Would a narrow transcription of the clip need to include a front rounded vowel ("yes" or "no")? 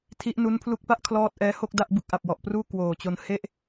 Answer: no